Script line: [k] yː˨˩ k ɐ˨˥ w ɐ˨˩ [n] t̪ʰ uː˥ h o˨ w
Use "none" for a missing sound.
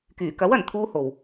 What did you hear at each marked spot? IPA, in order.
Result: k, n

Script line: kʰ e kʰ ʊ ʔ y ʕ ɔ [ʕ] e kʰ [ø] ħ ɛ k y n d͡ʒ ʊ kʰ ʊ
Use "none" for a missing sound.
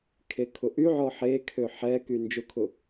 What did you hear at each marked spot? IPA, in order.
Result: ħ, ø

